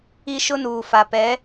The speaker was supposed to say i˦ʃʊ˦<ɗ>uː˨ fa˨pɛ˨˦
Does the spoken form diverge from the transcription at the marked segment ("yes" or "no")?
yes